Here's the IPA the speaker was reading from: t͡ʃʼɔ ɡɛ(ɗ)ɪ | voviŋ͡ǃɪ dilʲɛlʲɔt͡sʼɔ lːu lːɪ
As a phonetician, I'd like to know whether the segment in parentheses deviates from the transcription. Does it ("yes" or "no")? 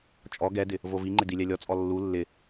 yes